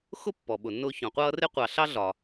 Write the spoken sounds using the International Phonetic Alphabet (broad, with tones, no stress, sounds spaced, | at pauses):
x ʊ˥ pː ɔ˩ ɓ ʊ˩ nː ʊː˦ ç ɔ̃˩ qʷ ʌː˥ r ɪ˥ qʷ ɑ˨ ɬ ɑ˥ ɮ ɒ˩